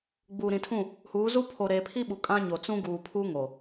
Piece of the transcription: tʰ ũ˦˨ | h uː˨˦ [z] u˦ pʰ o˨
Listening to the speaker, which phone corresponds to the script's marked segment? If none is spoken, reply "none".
z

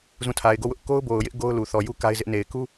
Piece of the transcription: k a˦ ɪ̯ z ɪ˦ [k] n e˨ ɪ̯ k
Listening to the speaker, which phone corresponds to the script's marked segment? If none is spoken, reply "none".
ʔ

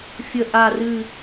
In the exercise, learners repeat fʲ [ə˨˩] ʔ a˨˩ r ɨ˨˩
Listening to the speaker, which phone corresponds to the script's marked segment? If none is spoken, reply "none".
ə˨˩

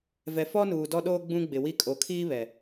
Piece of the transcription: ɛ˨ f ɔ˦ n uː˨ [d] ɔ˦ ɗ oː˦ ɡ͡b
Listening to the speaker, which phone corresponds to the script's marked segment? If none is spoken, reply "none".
d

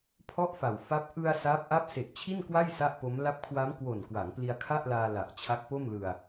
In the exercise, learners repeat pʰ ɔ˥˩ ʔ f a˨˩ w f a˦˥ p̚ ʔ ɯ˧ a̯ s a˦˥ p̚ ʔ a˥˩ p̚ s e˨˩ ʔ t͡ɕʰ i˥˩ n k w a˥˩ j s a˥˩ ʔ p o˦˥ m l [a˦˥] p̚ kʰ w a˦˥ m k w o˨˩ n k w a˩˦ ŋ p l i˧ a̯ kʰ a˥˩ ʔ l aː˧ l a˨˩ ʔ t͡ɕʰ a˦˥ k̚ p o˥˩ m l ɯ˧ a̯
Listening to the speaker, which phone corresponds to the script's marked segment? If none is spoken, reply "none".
a˦˥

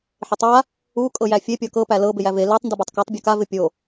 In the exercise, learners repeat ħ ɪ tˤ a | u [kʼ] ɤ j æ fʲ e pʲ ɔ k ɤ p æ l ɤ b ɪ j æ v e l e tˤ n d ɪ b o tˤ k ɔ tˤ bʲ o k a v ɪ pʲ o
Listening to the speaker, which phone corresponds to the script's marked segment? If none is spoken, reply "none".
kʼ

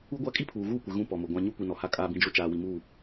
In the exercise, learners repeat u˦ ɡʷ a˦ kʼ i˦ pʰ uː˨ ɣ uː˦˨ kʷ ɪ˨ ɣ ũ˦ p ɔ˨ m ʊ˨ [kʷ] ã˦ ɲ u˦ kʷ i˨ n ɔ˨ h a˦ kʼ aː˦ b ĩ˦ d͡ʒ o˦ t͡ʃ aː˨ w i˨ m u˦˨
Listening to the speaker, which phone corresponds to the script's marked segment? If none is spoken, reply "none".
ɡʷ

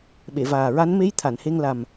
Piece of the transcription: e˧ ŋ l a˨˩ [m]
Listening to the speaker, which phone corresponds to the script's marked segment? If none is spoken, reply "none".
m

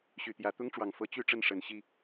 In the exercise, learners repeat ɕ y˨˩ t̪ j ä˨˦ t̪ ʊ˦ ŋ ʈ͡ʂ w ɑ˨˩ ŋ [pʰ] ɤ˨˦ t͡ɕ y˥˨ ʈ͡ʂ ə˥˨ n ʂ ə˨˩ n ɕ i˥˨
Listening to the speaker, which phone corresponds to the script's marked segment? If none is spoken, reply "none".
f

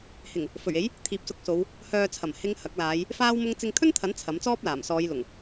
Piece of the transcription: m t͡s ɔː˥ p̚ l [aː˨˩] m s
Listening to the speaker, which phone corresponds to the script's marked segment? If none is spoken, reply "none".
aː˨˩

